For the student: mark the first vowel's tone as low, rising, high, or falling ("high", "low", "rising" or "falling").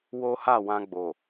high